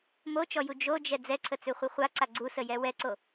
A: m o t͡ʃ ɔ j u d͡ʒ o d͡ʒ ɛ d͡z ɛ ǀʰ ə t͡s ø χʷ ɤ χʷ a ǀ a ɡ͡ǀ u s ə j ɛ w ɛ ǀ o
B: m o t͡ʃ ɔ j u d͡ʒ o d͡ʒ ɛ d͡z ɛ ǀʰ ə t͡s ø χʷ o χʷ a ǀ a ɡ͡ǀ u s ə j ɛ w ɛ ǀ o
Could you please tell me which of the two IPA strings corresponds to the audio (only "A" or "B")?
A